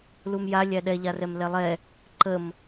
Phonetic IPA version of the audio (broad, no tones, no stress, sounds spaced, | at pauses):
l u m j a lʲ æ ɗ ɛ ʎ a r ɛ m l ɛ lˠ ɛ | ǃ ə m